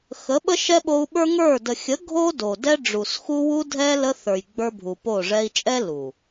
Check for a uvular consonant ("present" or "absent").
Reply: absent